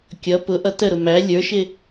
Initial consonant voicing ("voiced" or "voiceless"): voiceless